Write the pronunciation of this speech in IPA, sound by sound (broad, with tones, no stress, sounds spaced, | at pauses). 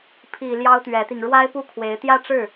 pʰ i˨˩ l j ɑ˥ ʊ̯ t̪ ɥ ɛ˧˥ t̪ i˧ ŋ ɻ w a˥ ɪ̯ p u˥ kʰ w e˧˥ ɪ̯ t̪ j ä˥˧ ʈ͡ʂ ɻ̩˥˩